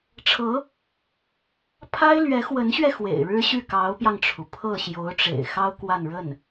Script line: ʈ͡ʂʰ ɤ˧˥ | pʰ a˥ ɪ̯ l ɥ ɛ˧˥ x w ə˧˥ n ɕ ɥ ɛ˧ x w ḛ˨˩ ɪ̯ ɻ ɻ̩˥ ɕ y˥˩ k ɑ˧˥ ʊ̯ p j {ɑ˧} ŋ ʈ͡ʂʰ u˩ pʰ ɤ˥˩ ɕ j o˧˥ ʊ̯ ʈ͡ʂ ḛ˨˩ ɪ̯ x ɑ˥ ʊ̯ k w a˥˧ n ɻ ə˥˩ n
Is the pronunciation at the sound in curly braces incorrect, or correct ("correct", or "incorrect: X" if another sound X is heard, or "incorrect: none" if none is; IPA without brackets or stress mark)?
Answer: correct